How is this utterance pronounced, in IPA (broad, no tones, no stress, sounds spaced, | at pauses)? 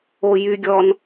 o j y ɡʲ ɔ n